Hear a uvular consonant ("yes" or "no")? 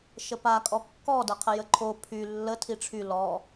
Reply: yes